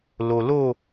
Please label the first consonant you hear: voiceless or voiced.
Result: voiced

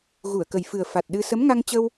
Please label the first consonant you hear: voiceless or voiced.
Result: voiced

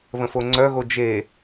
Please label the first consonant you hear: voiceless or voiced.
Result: voiced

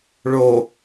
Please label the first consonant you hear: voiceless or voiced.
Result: voiced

